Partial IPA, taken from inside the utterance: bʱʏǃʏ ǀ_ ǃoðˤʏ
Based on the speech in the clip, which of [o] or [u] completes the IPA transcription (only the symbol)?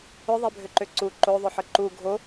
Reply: u